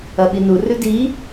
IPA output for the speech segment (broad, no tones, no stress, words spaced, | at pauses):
ɐɓinurʉ di